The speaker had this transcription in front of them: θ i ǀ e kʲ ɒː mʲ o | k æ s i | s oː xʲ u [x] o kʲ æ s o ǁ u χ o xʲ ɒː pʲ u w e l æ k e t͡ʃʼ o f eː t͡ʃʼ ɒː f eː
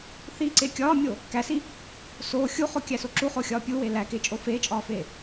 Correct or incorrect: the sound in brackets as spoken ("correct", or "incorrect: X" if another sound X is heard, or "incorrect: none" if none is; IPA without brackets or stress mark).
incorrect: χ